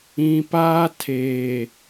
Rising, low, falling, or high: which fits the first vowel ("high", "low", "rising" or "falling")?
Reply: low